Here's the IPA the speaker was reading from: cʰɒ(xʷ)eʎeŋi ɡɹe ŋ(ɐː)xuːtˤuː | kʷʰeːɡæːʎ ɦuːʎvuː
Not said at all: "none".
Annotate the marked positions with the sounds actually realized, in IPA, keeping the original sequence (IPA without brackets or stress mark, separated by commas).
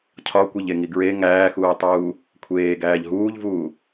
kʷ, æː